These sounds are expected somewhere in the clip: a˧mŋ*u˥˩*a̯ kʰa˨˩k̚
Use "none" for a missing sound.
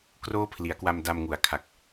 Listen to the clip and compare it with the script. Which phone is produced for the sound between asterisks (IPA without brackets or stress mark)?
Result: u˩˦